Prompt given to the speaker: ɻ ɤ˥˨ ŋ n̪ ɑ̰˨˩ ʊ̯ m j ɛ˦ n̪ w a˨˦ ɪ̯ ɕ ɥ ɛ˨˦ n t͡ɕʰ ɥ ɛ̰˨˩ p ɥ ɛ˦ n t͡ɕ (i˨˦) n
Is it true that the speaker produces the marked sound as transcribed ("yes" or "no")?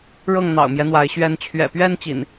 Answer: no